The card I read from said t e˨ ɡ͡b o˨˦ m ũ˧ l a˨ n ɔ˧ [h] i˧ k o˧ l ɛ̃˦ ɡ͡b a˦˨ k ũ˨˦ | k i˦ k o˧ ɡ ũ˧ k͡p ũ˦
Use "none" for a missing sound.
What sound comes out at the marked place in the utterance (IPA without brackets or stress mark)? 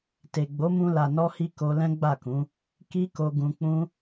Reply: h